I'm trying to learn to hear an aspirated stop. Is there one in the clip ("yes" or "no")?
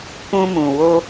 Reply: no